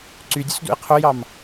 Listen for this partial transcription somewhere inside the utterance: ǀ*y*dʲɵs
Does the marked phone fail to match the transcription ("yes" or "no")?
no